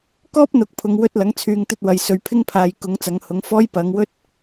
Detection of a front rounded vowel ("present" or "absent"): present